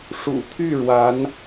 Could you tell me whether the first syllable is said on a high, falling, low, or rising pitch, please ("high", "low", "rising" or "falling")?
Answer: low